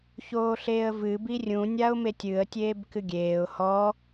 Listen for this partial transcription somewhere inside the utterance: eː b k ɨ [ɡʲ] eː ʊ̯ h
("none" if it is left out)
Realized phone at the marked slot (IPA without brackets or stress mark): ɡʲ